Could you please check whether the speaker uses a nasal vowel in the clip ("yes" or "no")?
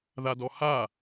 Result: no